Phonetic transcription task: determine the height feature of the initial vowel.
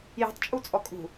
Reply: high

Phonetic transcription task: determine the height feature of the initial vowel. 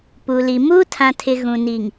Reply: high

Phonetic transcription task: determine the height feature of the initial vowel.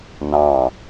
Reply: low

